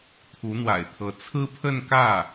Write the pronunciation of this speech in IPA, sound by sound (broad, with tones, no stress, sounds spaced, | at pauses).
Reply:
t̪ʰ u˧˥ n̪ w a̰˨˩ ɪ̯ t̪ʰ ɤ˧˥ t͡sʰ ɹ̩˥ pʰ ə˥˧ n k ä˥˩